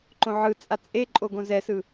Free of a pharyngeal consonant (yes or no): no